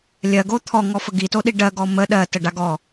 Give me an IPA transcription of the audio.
lʲ ɜ ɡ o t̪ʰ ɔ ŋ ɔ f ə ɡ i t o ɗ i ɖ ɜ ɡ ɔ m ə ɗ ɜ t ə ɖ a ɡ ɔ

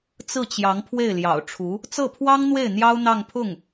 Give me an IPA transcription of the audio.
t͡s ɹ̩˥˩ t͡ɕ j ɑ˧˥ ŋ pʰ w e˥˩ ɪ̯ l j ɑ̰˨˩ ʊ̯ ʈ͡ʂʰ u˧˥ | t͡s ɤ˥˩ pʰ w ɑ˥ ŋ n̪ w e˥˩ ɪ̯ n̪ j ɑ˥ ʊ̯ n̪ ɑ˥˧ ŋ pʰ ʊ˥˩ ŋ

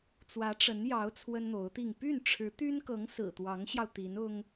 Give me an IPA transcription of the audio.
t͡s w ä˧˥ ʈ͡ʂ ə˧˥ n j ɑ˧˥ ʊ̯ t͡sʰ w ə˥ n n̪ o˧˥ ʊ̯ t̪ i˥˧ ŋ p y˥˩ n ʈ͡ʂʰ ɻ̩˧˥ t̪ y˥ n k ɤ˧˥ ŋ s ɹ̩˨˩ t̪ w ɑ˧˥ ŋ ɕ j ɑ˧ ʊ̯ t̪ i˧˥ n ʊ˥ ŋ

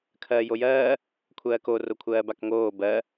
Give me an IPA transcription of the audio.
kʰ ɜː j o j ɜː | kʷʰ ɜː k o r o kʷʰ ɜː b a k ŋ oː b ɜ

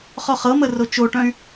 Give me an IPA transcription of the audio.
χ ɔ χ ɤ m ə r o t͡ʃ o ʈ œ̃ y̯

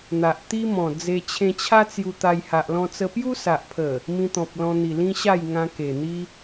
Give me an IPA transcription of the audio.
n̪ a˨ ʔ t̪ i˦ m ɔ̃˨˩ d͡z e˧ t͡ɕʰ ẽ˧ t͡ɕʰ a˦ t͡s j u˧ t̪ a˧ j h a˨ ʔ l ɔ̃˧ t͡s ə˧ p j u˦ s a˨ ʔ pʰ ə˨˩ | m ĩ˧ t̪ ɔ̃˨ p̚ l ɔ̃˧ n̪ i˨˩ l ĩ˦ ɕ a˥˧ j ŋ ã˧ k e˨˩ n̪ i˦

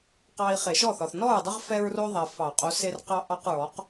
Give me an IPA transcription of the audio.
q ɑ˨ i̯ χ e˨˩˦ ʃ ɔ˥˩ θ ɒ˨ θ n ɔ˥˩ ɹ dˤ ə˦ ʁ f ɛ˦ ɹ r o˦ ðˤ ɛ˨ f ɑ˨˩˦ qʼ o˨˥ s e˦ r q ɑ˦ ʔ ɑ˦ q ɹ ɔ˨˥ q

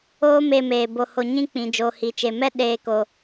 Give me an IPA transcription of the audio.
oː˦ m e˧ m eː˨ b o˧ h o˧ ɲ ĩ˦ k͡p ĩ˨ d͡ʒ oː˨ h i˨ t͡ʃ e˨ m ɛ˦ ɗ eː˧ k o˨

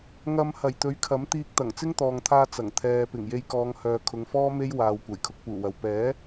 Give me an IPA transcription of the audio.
ŋ ɐ˧ m h ɐ˨˩ j t̪ ɵ˨˥ ɥ kʰ ɐ˨˥ m t̪ iː˧ k̚ t̪ ɐ˨˩ ŋ t͡s ɪ˥ ŋ t̪ ɔː˨ ŋ t̪ʰ aː˧ t͡s ɐ˨˩ ŋ t̪ʰ ɛː˨ p ɪ˨˩ ŋ j e˧ j k ɔː˨˧ ŋ h œː˨ kʰ ʊ˨˧ ŋ f ɔː˥ m e˥ j w aː˨ w kʷ ɐ˨˩ j kʰ ʊ˧ k̚ p uː˨˩ w ɐ˨ w p ɛː˨˥

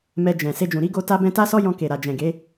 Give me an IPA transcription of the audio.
m ɛ˧ d͡ʒ ɛ̃˨ s e˧ d͡ʒ ũ˨ ɾ i˨˦ ɡ o˧ t a˧ b ɛ̃˧ t a˦ s ɔ˦ j ɔ̃˧ k e˨ ɾ a˨ d͡ʒ ɛ̃˨ ɡ e˨˦

